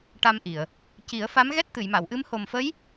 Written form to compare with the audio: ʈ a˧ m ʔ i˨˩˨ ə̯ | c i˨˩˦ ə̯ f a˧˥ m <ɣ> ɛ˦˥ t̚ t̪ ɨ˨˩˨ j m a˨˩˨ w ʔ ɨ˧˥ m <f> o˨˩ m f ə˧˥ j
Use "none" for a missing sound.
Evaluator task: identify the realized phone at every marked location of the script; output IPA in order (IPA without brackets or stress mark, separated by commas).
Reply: ɣ, h